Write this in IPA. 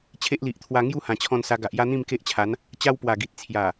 t͡ɕʰ e˦ ʔ l i˨ ʔ t̪ʰ w a˧ ŋ j u˥˧ h ã˨˩ t͡ɕʰ ɔ̃˧ n s a˧ ɡ a˨ ʔ j a˦ n̪ ĩ˥˧ m k e˦ ʔ t͡ɕʰ a˨˦ n | t͡ɕ a˦ w p w a˨˩ ɡ i˨ t̚ t͡sʰ j a˨˩

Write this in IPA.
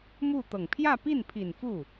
m u˥˩ t̪ ɤ˨˩ ŋ pʰ j ä˥˧ p i˥˩ n pʰ i˨˩ n f u˥˩

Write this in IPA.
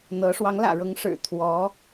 n̪ ɤ˧˥ ʂ w ɑ˧˥ ŋ l ä̰˨˩ ɻ ɤ˧˥ ŋ ʂ ɻ̩˨˩ t̪ʰ w ɔ˧˥

